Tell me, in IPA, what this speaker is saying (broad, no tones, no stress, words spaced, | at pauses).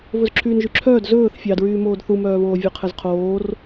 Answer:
vɵzǁʰyːnʒyǁʰœːd zɵːθ fʲɑdɹyːmoːd θumœːβoː vʲœqʰɛzqʰoːr